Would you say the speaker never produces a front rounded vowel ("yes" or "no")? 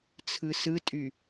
no